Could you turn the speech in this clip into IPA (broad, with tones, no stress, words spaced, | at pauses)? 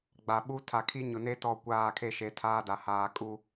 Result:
ɡ͡ba˨ɓu˦tʰa˨ kʰi˦ɲʊ˨ne˦tɔ˦˨ kʷaː˦˨kʰe˦ʃe˨ tʰaː˦da˨ haː˨kʼu˦